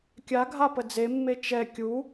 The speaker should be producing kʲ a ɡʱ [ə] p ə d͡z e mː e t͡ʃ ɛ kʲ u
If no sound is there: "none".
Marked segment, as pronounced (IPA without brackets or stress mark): a